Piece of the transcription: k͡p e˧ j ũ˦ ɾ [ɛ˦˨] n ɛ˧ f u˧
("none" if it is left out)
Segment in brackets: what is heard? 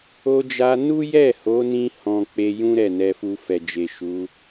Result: ɛ˦˨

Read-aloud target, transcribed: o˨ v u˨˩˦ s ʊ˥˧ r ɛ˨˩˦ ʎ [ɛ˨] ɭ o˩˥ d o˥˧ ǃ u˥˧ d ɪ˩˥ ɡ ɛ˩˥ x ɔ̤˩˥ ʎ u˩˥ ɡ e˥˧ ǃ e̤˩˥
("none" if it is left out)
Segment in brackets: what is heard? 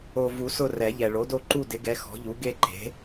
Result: ɛ˨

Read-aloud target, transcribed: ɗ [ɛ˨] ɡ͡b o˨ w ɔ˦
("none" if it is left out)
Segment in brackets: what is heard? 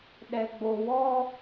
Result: ɛ˨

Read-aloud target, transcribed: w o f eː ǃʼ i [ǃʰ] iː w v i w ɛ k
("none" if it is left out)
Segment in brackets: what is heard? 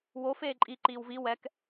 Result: ǃ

